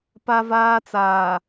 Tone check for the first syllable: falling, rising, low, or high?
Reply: high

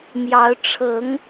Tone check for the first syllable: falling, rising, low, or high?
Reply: rising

